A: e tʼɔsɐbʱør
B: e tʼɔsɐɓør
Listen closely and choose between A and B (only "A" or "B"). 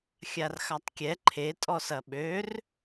B